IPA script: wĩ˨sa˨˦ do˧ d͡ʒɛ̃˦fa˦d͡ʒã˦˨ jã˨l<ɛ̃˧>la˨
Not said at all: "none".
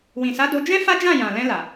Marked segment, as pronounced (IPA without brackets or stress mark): ɛ̃˧